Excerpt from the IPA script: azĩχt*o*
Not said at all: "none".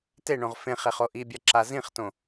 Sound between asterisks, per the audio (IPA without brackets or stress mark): õ